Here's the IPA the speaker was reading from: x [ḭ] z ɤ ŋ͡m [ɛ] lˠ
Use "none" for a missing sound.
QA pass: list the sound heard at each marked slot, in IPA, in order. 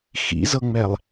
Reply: ḭ, ɛ

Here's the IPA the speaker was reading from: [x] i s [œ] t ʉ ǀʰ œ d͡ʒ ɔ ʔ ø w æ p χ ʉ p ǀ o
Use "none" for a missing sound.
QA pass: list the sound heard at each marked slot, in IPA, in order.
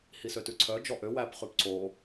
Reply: h, ø

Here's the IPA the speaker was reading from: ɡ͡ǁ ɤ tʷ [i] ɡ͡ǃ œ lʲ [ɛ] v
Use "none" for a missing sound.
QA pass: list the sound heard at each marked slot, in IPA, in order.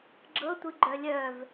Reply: ɨ, œ

